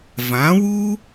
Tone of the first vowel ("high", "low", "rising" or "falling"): rising